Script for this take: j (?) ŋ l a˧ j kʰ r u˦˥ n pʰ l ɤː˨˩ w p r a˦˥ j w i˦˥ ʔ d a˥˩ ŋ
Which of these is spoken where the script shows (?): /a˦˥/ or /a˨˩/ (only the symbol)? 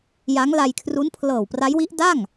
a˦˥